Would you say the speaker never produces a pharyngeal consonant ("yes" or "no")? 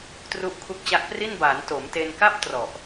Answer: yes